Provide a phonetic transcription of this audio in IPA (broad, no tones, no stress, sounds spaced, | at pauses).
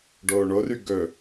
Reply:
ɖ oː ɳ o r y ɡ ɵ